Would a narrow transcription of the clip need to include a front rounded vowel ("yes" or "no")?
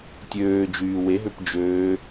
yes